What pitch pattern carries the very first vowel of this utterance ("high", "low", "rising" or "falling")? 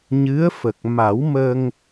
rising